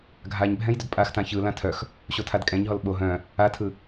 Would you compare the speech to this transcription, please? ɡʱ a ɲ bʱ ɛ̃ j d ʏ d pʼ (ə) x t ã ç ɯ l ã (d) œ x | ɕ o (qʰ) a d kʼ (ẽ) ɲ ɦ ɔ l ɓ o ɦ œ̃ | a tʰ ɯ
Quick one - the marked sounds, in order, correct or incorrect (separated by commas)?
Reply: incorrect, incorrect, incorrect, incorrect